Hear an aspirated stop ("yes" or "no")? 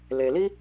no